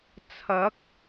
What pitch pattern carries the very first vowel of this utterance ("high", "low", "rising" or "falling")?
rising